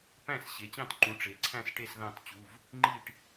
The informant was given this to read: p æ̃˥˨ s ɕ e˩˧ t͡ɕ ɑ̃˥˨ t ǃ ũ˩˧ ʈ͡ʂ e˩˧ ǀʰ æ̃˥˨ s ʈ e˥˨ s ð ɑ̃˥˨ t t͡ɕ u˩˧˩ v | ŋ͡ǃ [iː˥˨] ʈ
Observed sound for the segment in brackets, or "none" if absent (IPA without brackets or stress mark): iː˥˨